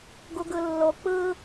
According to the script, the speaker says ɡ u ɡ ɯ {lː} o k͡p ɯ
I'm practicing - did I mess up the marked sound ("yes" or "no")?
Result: no